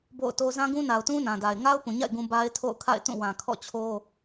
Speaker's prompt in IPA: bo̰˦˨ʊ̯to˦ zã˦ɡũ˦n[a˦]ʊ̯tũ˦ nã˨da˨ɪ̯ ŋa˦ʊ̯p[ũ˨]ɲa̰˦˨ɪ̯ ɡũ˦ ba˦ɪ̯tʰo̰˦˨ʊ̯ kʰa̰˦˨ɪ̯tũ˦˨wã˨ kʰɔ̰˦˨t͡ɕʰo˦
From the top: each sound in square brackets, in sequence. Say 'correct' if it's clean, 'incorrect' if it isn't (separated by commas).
incorrect, correct